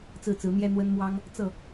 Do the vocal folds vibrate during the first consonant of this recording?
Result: no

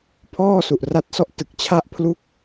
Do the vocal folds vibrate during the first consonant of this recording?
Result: no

